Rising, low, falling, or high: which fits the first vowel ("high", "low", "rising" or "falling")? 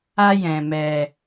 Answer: high